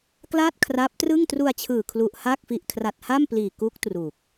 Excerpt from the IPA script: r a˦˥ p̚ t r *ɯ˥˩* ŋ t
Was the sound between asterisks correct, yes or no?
yes